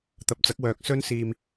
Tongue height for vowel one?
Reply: low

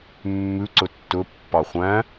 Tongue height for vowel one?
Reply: high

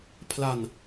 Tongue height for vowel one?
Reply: low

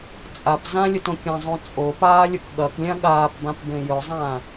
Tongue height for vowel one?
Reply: low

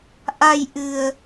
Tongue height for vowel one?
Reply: low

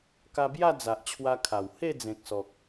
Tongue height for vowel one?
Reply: low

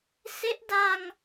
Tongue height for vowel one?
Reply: mid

